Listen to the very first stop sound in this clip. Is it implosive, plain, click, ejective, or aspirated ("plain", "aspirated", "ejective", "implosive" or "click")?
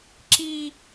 click